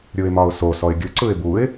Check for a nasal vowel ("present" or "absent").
absent